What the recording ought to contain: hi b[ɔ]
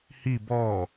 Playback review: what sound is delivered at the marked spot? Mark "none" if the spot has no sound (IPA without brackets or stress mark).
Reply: ɔ